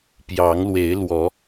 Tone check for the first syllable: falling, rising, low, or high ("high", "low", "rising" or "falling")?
rising